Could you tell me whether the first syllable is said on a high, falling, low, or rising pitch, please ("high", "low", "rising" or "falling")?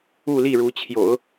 falling